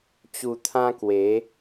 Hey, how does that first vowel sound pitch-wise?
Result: low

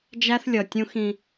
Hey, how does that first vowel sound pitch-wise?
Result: high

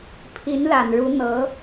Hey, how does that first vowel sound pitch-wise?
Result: rising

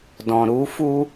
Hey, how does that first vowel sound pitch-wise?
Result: low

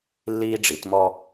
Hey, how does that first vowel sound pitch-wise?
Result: high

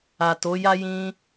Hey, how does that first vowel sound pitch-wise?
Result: low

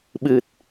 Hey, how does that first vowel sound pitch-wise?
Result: low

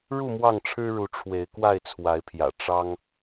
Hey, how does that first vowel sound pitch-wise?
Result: falling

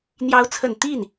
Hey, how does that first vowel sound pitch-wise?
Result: rising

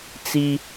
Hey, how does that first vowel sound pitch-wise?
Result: high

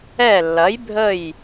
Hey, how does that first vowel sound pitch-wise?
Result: falling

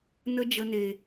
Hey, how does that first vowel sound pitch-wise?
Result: high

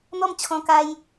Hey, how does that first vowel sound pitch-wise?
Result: falling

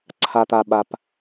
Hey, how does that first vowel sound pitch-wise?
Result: low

